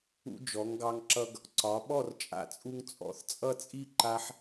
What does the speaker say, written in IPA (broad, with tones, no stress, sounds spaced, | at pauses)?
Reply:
ṵ˧ d͡ʒ ɔ˩˧ ŋ ɡ ɑ˧ ŋ ǁ ʌ˧ ɡ | ǀ ɒ˩˧ ɓ ɔ˥˧ r t͡ʃʼ a̰˧˩ t͡sʼ u˧ ŋ t͡sʼ ɔ̰˩˧ θ t͡sʼ ʌ˥˧ t͡sʼ i˥˧ ǃ a˧ ħ